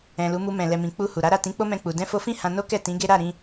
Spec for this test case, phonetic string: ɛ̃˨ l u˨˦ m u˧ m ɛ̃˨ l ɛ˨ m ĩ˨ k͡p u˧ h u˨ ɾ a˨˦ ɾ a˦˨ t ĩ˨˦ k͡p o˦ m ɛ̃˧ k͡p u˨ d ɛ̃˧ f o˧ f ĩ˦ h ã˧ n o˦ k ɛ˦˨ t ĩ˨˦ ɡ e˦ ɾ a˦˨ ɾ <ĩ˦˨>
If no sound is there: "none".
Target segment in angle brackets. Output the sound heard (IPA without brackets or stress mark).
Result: ĩ˧